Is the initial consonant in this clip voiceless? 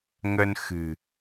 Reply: no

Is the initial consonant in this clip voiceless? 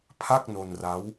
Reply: yes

